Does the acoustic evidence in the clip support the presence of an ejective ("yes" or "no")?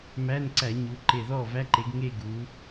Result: no